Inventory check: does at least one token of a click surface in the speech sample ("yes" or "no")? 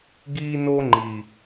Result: yes